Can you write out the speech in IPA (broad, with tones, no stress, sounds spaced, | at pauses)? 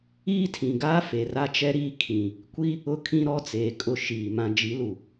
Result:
iː˦ tʰ ĩ˨ ɡ aː˦ f e˨ r a˦ t͡ʃ ɛ˦ ɾ iː˦ kʰ ĩ˨ | kʷ i˦ | ʊ˦ kʰ ĩ˦ ɾ ɔ˦ t͡s eː˨ kʼ ʊ˨ ʃ iː˨ m ã˨ d͡ʒ i˨˦ l u˨